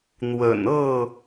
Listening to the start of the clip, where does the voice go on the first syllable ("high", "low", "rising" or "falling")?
low